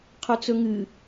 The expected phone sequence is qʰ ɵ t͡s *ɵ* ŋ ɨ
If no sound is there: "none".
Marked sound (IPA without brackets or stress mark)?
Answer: ɵ